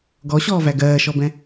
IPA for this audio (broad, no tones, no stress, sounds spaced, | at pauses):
ɡ ɔ ɕ ɔː v æ ɡ ɜː ʃ ɔ b ɛ̃